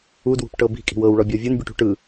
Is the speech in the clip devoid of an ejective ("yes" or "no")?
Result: no